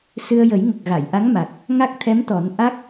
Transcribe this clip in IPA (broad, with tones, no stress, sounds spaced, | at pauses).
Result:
s ɨ˧ ə̯ j ə˨˩˦ j ŋ ə˨˩ k̚ ɣ a˨˩˨ j ʔ a˧˥ ŋ m a˨˩ k̚ | ŋ a˦˥ k̚ t̪ʰ ɛ˧˥ m t̪ ɔ˨˩˦ n ʔ a˦˥ k̚